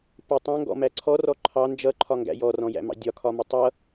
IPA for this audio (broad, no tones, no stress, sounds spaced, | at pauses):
p ɪ tˤ æ̃ ŋ ɡ ɔ̰ m æ ǀʰ ɔ r ɔ ǃʰ ɑ n d͡ʒ ʌ ǃʰ ɒ ŋ ɡ æ̰ j ɔ r ɔ̃ j æ̰ m ɑ̰ dʲ ɒ kʰ ɒ m ɪ tˤ ʌ